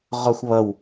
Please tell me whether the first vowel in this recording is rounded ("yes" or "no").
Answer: yes